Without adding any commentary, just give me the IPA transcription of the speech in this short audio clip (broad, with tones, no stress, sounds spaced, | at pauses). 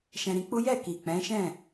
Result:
ʃ ɛ̃˧ ɾ ĩ˧ k͡p u˦ j ɛ˦˨ k i˨ k͡p ɛ̃˨˦ ʃ ɛ̃˦˨